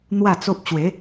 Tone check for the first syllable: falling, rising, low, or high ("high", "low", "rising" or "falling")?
falling